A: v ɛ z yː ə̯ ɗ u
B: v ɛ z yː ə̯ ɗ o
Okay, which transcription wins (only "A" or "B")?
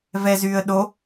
B